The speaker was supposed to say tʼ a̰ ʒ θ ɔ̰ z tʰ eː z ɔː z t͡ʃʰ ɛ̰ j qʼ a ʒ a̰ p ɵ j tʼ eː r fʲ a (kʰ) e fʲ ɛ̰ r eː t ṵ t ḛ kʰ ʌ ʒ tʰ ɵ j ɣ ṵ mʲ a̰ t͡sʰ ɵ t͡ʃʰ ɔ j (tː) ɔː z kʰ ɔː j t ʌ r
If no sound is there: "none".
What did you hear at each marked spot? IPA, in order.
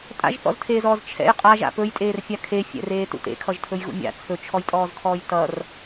kʰ, tʼ

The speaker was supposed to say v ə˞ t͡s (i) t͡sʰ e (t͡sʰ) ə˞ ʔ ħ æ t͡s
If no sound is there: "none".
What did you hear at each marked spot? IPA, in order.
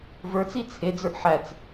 i, d͡z

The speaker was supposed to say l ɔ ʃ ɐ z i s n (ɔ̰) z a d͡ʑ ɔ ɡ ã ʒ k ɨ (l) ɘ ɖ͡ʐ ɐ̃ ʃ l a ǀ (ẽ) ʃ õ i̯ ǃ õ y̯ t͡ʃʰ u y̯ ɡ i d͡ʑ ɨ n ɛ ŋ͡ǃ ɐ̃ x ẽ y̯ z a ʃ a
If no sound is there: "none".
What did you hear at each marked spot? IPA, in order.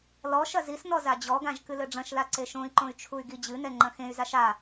ɔ, l, e

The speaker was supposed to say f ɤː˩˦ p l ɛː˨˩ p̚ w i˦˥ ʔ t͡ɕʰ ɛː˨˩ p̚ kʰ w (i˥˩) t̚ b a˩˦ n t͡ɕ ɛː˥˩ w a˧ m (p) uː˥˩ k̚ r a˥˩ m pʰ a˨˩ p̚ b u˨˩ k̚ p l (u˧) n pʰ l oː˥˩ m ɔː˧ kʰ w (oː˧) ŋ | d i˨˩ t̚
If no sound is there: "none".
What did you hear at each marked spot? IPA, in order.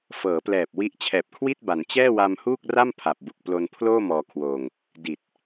i˥˩, h, o˧, oː˧

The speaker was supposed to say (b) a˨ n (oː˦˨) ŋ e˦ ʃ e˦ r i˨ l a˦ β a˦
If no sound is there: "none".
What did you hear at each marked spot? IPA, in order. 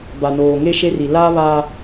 b, oː˨

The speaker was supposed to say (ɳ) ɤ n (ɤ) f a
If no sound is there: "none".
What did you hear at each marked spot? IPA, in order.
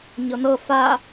ɲ, ɤ

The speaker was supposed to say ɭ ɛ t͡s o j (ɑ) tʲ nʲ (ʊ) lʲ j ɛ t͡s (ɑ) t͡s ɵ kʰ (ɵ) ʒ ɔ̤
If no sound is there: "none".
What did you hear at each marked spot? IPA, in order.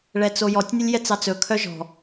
ɔ, ə, ɑ, œ

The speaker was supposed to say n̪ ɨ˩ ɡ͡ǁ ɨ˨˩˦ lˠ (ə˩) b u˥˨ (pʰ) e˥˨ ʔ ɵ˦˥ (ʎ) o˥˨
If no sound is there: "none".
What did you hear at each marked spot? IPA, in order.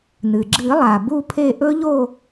a˩, pʰ, ʎ

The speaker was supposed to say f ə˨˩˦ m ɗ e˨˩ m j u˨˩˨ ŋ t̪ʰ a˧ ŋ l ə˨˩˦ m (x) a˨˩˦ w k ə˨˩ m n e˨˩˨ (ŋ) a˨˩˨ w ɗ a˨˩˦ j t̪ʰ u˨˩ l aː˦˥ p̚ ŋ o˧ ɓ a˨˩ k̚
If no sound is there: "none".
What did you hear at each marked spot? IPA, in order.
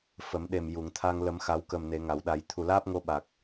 x, ŋ

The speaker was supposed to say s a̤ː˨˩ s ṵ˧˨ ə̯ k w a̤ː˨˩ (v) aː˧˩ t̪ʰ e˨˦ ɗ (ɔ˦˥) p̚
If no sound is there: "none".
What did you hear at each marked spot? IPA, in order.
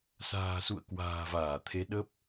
v, ə˦˥

